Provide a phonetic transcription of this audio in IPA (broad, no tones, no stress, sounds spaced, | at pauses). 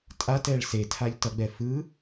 tʼ a t ɛ ɭ s e tʰ a ʎ t ʌ ɡ͡b ɛ f ɯ